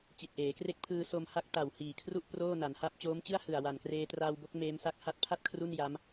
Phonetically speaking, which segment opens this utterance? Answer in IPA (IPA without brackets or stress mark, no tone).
t͡ɕ